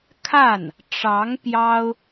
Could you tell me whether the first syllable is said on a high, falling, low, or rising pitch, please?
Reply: falling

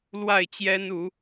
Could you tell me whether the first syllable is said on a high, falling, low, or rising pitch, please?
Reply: falling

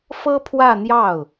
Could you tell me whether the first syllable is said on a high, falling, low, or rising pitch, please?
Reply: high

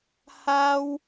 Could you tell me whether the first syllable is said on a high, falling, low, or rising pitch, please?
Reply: high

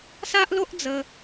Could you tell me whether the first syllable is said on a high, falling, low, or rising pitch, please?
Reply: high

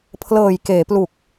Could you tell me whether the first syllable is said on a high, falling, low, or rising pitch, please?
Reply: low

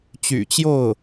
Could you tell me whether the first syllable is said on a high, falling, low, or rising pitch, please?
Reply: low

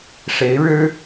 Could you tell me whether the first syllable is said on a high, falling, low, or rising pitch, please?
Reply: rising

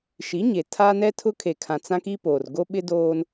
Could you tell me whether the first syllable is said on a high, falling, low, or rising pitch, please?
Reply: rising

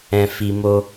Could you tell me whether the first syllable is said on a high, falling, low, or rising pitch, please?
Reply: low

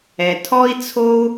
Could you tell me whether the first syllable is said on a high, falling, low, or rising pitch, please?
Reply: low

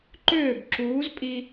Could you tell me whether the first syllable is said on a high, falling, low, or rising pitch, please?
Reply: falling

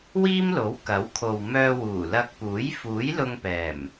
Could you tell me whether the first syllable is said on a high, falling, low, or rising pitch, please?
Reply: high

